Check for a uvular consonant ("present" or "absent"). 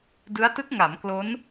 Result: absent